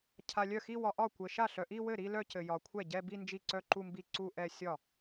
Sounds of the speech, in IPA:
cʰ a˨ lʲ œ˥˩ x i˥˧ w ɒ˨ ʔ ɒ˥˩ kʷ ɘ˨ ʃ a˥˩ ɬ œ˨ ʔ i˥˧ w ɘ˥˩ ɾ i˥˧ l œ˥˧ c ɘ˨ j ɒ˨ kʷʰ ɛ˥˩ ɟ ɛ˥˧ b i˥˧ n d͡ʒ i˥˩ ǀ œ˥˧ ǃ u˥˧ m b i˥˩ ǀ u˥˧ ʔ ɛ˥˧ sʲ ɒ˥˩

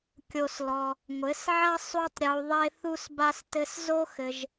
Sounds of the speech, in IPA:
kʲ o˧ s l ɔ˧ | ŋʷ ɘ˨˦ s ʕ ɐ˦ sˤ u˦ tˤ ɾʲ u˧ ðˤ e˦ θ u˦ s b a˦ s t ɘ˦ s z o˦ x ɘ˧ ʒ

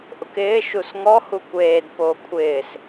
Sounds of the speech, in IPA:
ʔ ʊ k ɪː ʃ u s ŋ ɔ h u kʷ eː d p oː kʷʰ ɪː s

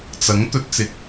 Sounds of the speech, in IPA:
t͡s ɐ˨˥ ŋ t̪ ɵ˧ t̚ t͡s ɪ˧ k̚

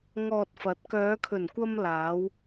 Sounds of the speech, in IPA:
ŋ ɔː˨ t̚ f ɐ˨˥ t̚ k œː˨˧ kʰ ɵ˨˩ n kʷ ɐ˧ m l aː˨˧ w

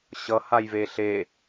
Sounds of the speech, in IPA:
ɕ ʌ h a j v e ɬ e

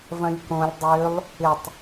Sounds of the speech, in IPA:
v ɐ̃ lʲ k õ lʲ dˤ ø lˠ | ɪ tˤ

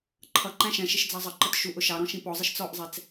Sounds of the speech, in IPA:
ǃʰ ʌ ǃ æ̃ ʃ ɛ̃ ʃ ɪ ʃ d͡z ɑ zˤ ə ǃ ə t ʃ u ʔ ʊ ʃ ɑ ɾ ɔ̃ ʃ ĩ p ɔ zˤ ə ʃ t͡s ɔ ʔ zˤ ɛ t͡s

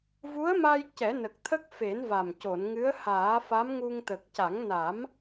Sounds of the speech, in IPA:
v u˧˥ ə̯ m a˧ j c ɛ˨˩˦ n ə˨˩ k̚ t̪ʰ ə˦˥ k̚ f e˨˩˦ n v a˨˩ m c o˨˩˨ n ŋ ɨ˧˥ ə̯ h aː˨˩˦ f a˧˥ m ŋ u˧ ŋ t̪ ə˨˩ k̚ c a˨˩˦ ŋ n a˨˩˦ m

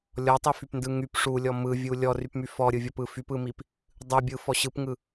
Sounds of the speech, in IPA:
lʲ ɔ tˤ i f y p n d ɯ ŋ y p ʂ u lʲ ɔ m ɯ vʲ u lʲ ɔ r y p m y f ɔ ɾʲ ɯ vʲ ɔ p ɯ f y p ɯ m i p | dˤ ɯ bʲ ɯ f ɔ ɕ ɯ p ŋ ɯ

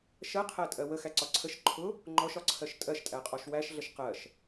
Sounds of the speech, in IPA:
ʃ ɜ qʰ æ tʼ ɜ w ə x æ ǀ ɒ ǀʰ ə ʃ ǃʰ ʊ | ŋ͡ǃ ɔ ʃ ɒ ǀʰ ɜ ʃ tʼ ɜ ʃ tʼ æ qʼ ɔ ʃ w æ ʃ ɮ ə ʃ q ɜ ʃ

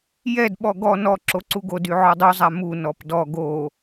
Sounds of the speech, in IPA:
j ɛ d ɓ ɔ ɡ ɔ n ɔ ǁ o ǀ u ɡ o d y ʕ ɔ dˤ u zˤ a m u n ɔ p d ɔ ɡ o

